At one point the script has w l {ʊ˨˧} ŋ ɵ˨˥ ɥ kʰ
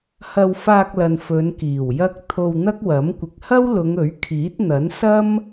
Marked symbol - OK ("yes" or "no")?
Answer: yes